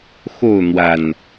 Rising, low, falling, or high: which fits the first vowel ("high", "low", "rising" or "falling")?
falling